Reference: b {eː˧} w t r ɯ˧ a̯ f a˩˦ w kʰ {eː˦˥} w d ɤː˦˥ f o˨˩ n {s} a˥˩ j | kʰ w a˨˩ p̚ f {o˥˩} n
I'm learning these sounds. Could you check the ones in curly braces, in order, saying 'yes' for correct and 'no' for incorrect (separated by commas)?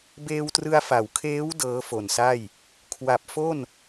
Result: yes, yes, yes, yes